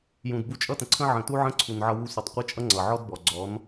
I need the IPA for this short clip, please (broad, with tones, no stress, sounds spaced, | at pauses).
j ũ˨ d b u˧ t͡ʃʼ ʌ˦ t ə̃˨ ǀʰ ə̃˦ ʕ ə̃˨ t u˦ ʕ ə̃˦ ǀʰ u˨ n ʕ ʌ˧ w u˧ sʷ ʌ˨ tˤ qʷ ə˦ t͡ʃʼ ʌ˦ ŋ͡ǀ ʌ˨ ʕ ɔ˦ d b ɔ˨ ɡ͡ǀ ɔ˨˦ n